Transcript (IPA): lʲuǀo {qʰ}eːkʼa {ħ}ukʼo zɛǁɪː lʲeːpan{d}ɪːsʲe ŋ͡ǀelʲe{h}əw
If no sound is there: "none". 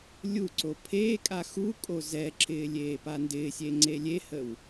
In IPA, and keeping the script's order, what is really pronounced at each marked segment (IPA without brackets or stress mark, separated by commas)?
pʰ, x, d, h